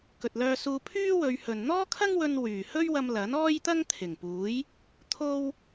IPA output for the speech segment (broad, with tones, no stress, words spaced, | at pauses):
kɵ˨t̚lœː˧suː˧ pʰyː˥wɵ˨˧ɥhɵ˨n n̪ɔː˥kʰɐ˥ŋwɵ˧n wyː˨˩ hɵ˥ɥwɐ˧m lɐ˨˥nɔː˥jt̪ɐ˥ŋ t̪ʰɪ˨˩ŋpuː˨˥j | t̪ʰo˥w